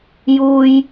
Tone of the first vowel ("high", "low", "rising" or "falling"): high